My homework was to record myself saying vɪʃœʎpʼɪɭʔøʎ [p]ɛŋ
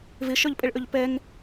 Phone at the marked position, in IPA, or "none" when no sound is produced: p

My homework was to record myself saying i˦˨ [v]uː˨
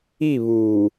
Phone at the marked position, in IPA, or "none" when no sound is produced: β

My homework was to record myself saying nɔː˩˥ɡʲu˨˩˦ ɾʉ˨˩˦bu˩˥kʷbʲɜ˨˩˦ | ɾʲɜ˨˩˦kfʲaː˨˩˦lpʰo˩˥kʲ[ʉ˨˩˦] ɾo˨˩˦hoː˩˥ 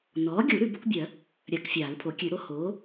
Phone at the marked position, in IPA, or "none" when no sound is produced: ʉ˨˩˦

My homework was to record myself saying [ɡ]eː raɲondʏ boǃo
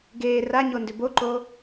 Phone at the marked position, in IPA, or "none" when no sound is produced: ɡ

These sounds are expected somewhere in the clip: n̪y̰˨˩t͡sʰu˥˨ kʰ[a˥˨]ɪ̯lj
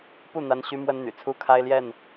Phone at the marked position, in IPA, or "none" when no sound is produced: a˦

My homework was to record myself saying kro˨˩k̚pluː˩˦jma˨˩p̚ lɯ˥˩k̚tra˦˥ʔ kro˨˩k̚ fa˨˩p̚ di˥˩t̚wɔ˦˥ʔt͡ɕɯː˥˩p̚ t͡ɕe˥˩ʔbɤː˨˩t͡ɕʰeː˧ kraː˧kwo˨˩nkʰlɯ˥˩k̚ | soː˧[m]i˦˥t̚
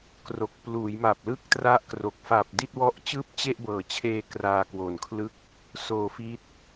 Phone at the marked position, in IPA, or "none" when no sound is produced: f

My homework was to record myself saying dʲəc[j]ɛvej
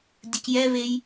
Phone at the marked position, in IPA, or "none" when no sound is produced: j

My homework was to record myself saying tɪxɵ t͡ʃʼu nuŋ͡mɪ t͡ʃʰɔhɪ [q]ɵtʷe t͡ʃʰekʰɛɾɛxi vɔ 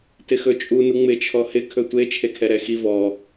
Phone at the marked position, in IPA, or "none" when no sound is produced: kʰ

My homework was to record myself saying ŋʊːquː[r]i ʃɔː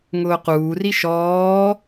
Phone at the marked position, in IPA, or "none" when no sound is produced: r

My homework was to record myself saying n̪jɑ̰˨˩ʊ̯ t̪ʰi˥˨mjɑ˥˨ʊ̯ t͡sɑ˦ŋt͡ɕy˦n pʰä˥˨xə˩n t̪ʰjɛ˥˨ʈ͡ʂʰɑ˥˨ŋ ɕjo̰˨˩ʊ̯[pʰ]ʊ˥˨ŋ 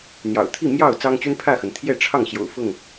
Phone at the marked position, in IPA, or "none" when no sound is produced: f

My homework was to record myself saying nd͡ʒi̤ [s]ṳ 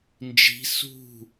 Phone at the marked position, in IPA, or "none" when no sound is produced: s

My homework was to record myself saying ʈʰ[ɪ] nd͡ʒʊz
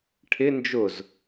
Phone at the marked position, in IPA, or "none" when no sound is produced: ɪ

